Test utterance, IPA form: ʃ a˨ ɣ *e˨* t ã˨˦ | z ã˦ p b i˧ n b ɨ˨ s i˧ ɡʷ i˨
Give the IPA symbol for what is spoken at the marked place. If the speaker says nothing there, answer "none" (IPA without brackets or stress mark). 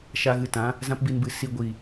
ɨ˨